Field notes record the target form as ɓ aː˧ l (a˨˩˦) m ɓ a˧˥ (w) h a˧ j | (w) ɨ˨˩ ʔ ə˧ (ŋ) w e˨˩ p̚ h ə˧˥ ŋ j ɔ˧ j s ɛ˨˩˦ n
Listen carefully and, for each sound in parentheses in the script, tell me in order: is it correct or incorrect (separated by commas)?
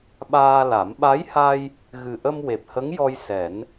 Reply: correct, incorrect, incorrect, incorrect